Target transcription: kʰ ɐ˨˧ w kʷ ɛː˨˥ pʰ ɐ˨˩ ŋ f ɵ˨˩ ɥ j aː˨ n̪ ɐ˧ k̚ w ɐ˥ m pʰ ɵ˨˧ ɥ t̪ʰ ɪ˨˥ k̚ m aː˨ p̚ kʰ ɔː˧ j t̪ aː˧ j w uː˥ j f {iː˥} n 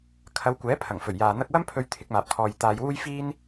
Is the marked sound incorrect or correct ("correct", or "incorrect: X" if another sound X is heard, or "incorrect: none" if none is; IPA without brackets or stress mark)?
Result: correct